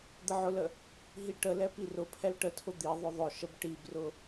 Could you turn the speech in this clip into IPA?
d̪əʕʊlə | ɦiʈəlɛ pirʊpʰɛl ʈətʰʊ d̪i ðˤʊðˤʊʃəb ʈibrʊ

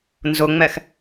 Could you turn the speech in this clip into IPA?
nzʊŋ͡mɛx

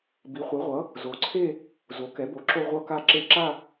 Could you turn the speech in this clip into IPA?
bi˩˥χʷɛ˩˥ʁʷʌ˩˥ | zo˩˥ǀʰe˥˧ | zo˩˥kɛ˩˥bo˩˥ǁo˥˧ ʁʷʌ˥˧ka˥˧ǁe˥˧ ǁa˥˧

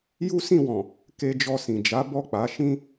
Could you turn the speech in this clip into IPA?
ju˦sĩ˦˨wɔ̃˨ | ke˧d͡ʒɔ˧sĩ˨ d͡ʒa˨˦bɔ˦˨k͡pa˨˦ ʃĩ˦

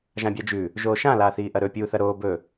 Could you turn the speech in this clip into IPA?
ʒãbʲad͡ʒʉ | ʒoːʃã laːθiːʔɐɾɵ pʲuːθɐɾoː bɵ

